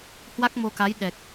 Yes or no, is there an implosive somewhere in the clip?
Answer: yes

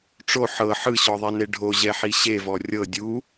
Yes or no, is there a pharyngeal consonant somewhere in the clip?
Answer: yes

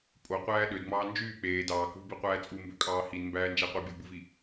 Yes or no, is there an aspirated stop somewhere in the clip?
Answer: no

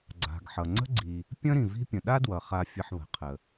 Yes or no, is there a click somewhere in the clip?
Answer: yes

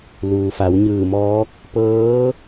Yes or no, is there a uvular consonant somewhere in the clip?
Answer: no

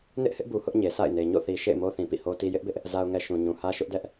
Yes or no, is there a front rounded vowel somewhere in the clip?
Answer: no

